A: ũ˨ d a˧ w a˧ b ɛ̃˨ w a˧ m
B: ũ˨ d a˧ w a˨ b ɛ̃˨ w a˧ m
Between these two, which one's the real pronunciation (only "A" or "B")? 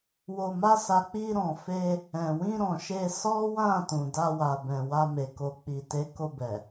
B